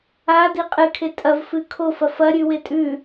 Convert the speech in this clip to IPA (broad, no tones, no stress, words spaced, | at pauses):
a diqʼɨkʰe tʼɐvfɨ kʰofɐ fɐ ɾʲʉwetʼʉ